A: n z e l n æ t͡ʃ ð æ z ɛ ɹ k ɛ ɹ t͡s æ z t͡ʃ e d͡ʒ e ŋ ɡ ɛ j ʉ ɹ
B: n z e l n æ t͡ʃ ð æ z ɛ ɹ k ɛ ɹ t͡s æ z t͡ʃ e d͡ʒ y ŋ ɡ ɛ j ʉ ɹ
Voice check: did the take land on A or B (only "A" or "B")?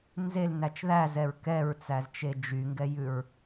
B